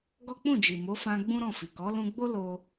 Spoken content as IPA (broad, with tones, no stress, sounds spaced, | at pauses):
ɡ ɔ˦ k͡p ũ˦˨ d͡ʒ i˨ m o˨˦ f ã˧ ɡ͡b ũ˦ ɾ ɔ̃˦˨ f i˨ k ɔ˨˦ l ũ˧ ɡ͡b o˦ l o˧